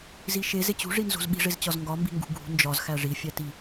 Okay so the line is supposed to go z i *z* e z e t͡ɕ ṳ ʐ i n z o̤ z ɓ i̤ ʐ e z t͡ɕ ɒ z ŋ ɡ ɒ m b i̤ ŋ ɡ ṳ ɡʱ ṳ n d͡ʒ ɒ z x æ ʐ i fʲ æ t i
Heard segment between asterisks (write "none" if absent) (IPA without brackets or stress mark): ʃ